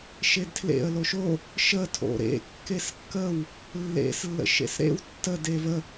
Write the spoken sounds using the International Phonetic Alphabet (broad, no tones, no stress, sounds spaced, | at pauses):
ʃ e d tʰ l ḛ ə̯ l o ʃ o | ʃ ə tʰ o̰ ɾ ḛ kː e s kː ə w | lː ḛ s lː ə̰ ʃ ḛ s ɾ ḛ w tː ə d e v ə